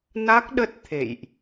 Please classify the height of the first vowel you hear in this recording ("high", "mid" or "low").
low